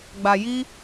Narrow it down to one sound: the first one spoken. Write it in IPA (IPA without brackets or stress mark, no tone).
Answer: ɡ͡b